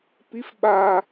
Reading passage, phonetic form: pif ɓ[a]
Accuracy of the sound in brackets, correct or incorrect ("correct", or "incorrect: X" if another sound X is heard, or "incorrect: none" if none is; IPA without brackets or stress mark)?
correct